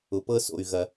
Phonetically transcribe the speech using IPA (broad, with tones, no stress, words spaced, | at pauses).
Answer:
ʊ˨pɤ˦so̰˨y̯ ɣɐ˨